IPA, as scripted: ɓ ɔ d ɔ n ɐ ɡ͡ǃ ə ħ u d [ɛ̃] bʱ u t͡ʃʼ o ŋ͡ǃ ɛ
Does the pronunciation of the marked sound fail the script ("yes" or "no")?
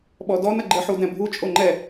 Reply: no